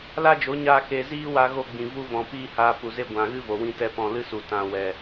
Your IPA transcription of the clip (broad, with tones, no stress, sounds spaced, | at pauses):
l a˦ d͡ʒ o˨˦ ɲ aː˧ k e˧ z iː˦ w a˧ ɣ o˧ ɡ͡b ĩ˨ v u˦ v ɔ̃˨ p iː˦ h aː˧ p u˨ z e˧ ɡʷ ã˨ ɣ ɨ˦ v o˨ w ĩ˦ t ɛ˦ p ɔ̃˨ l ɨ˦ s u˨ t ã˧ w ɛ˨